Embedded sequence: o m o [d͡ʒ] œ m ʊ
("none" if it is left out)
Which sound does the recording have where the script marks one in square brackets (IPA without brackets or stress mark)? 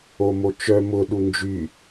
t͡ʃ